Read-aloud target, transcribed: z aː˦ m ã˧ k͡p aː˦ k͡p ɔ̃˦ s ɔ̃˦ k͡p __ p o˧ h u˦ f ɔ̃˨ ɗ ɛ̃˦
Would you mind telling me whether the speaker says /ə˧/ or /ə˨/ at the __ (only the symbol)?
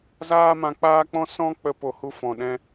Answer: ə˧